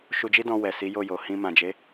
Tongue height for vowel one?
high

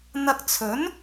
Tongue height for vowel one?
low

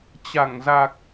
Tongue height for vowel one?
low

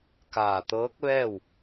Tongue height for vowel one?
low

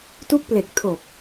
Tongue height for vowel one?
high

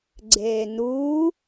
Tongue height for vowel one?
mid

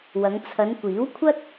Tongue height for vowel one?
low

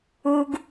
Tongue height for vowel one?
high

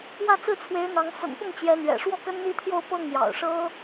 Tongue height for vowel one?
low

